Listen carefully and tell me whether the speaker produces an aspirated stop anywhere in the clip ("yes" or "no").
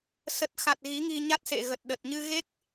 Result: no